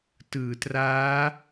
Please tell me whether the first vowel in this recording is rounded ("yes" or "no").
no